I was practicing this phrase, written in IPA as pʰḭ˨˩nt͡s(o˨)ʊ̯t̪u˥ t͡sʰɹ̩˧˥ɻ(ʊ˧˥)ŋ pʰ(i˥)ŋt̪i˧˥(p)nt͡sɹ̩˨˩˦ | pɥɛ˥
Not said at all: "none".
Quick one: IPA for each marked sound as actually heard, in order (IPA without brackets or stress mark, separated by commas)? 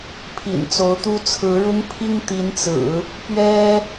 o˧˥, ʊ˥, i˥, none